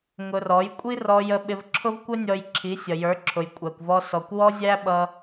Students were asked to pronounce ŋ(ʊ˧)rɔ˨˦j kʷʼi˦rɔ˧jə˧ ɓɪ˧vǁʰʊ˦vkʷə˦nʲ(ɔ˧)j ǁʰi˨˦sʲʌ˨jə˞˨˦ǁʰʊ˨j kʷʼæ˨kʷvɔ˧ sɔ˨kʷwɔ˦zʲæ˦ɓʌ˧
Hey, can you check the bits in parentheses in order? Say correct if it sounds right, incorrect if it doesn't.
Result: correct, correct

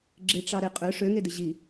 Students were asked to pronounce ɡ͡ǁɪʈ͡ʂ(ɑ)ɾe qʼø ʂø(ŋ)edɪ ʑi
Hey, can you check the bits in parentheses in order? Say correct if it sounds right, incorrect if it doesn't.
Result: correct, correct

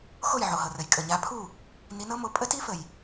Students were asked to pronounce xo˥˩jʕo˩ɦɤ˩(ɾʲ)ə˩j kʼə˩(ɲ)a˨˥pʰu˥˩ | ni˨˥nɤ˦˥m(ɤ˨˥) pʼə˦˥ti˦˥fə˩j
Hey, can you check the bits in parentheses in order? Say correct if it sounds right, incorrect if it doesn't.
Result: incorrect: r, correct, incorrect: o˨˥

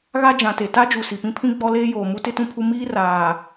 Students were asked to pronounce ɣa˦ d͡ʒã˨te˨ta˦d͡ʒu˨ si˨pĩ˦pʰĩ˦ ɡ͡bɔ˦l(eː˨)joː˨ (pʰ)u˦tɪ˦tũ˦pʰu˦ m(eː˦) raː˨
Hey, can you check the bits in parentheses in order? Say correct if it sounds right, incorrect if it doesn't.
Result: incorrect: eː˦, incorrect: m, incorrect: iː˦

